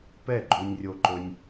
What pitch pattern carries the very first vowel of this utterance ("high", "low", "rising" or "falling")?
falling